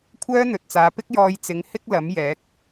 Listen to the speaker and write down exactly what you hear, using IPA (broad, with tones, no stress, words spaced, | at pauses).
kʷʰœː˥n̪ɵ˨t̚t͡saː˨˧pɪ˥k̚ jɔː˧jt͡sɪ˨˥ŋ hɪ˥k̚lɐ˨˥m jɛː˨˥k̚